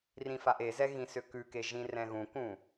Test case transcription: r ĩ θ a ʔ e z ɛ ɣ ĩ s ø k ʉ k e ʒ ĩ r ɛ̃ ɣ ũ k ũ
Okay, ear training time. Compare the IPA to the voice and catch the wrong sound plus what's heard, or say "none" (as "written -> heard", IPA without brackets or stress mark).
θ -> f